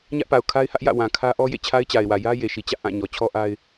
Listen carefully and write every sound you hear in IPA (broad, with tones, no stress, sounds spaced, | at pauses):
ɲ ä˦ ʔ p a˨ ʊ̯ kʰ a˦ ɪ̯ h ä˦ ʔ j ä̰˦˨ w ã˨ kʰ ä˦ ʔ ɔ˦ j ḛ˦˨ t͡ɕʰ a˦ ɪ̯ t͡ɕ a˨ ɪ̯ w ä˨ j ä˦ j e˨ ʃ i˨ t͡ɕ ä̰˦˨ ʔ ã˦˨ ɲ ɔ˨ t͡ɕʰ ɔ˦ ʔ a˦ ɪ̯